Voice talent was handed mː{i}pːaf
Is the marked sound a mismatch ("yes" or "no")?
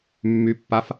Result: yes